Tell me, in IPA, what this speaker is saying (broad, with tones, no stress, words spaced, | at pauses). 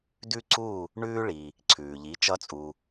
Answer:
dʉ˥ǀu˥˩ | ɳʉː˧ ɭi˩ | ǀʰʉː˩ʎi˩˥ t͡ʃʌ˧t͡sʼu˩